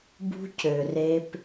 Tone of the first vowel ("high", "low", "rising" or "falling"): high